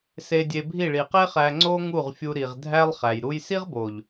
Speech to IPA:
s e˧ dʲ e˧ bʱ i˦˨ ɭ i˨ q e˦ χ æ˧ ŋ͡ǀ o˦ ŋ u˦˨ ʁ fʲ u˧ ɾ i˨ ʁ dʱ æ˦ lˠ χ æ˨ j ɾ u˦ j s i˦ ʁ b o˨ ʎ

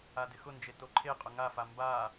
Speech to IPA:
a d ɪ x ʊ n d͡ʒ e t o ǃʰ e qʼ ʊ ŋ a f a m b a

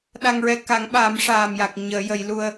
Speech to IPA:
ɗ a˧ ŋ ɹ ɛ˧ k a˨˩˦ ŋ ɓ aː˨˩˦ m ʂ aː˨˩ m j a˨˩ k̚ ɲ əː˨˩˦ j ə˨˩˦ j l u˧ ə̯

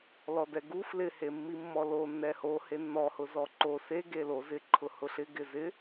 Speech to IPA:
l ɔ d ɛ ɡ u f l ɪ h e mː i mː ɔ l o nː ɛ h o h e nː ɔ h ʊ z ɔ ǃ o s e ɡ e l o z ɪ ǃʰ ʊ h ʊ ɬ ɪ ɡ ɪ z ɪ

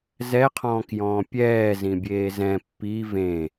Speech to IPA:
z ɛ qʰ ɔ̃ː k j ɔ̃ː pʲ ɛː z ĩ bʲ eː z ɛ̃ pː i v ẽ

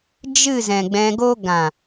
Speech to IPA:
d͡ʒ ɨ˦˨ z ɛ̃˨ ɡ͡b ɛ̃˧ ɡ o˦ ɡ ã˨

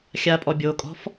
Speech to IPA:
xʲ a pʼ ɔ bʲ o kʼ ɔ̤ f

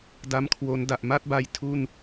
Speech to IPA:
d a˦˥ m kʰ w o˦˥ n d a˨˩ ʔ m a˥˩ t̚ b a˦˥ j tʰ u˥˩ n

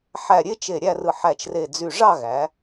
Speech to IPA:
ħ æ˧˩ ɾʲ e˥ t͡ʃ e˧˩ ɾʲ æ˥˧ r ɯ˧˩ ħ æ˧˩ t͡ʃ r e˧˩ d͡z y˧˩ ʐ ɑ˥˧ ɣ æ˩˧

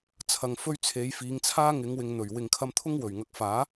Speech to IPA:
t͡sʰ ɐ˨ ŋ f ɵ˧ ɥ t͡sʰ e˨˧ j f iː˨˧ ŋ t͡sʰ aː˥ ŋ ɪ˨˧ ŋ w ɪ˨ ŋ n̪ ɵ˨˩ ɥ w ɪ˨ ŋ kʰ ɐ˧ m t̪ʰ ʊ˥ ŋ w ɵ˨˩ ɥ ŋ ɐ˨ k̚ f aː˨˥

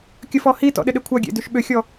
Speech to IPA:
kʲ ə f ɔ h i t ɔ̰ ɗ ɪ ɗ ɪ kʷʰ ɐ ɡʲ ḛ d y ʃ ɓ ʏ xʲ ɔ

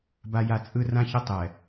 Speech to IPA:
b a˦ j a˦˨ t͡sʼ ɯ˦ r ã˦ ç ʌ˦ tˤ ɛ˨

